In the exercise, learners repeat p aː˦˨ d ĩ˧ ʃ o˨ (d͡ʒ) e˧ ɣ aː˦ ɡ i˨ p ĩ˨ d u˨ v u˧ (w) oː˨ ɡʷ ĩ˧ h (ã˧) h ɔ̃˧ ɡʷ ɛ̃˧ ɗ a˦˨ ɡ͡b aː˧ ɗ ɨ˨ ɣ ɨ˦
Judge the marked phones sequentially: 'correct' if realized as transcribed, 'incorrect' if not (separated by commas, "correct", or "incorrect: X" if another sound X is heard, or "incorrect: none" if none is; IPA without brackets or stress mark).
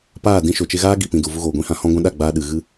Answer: incorrect: t͡ʃ, incorrect: ɣ, correct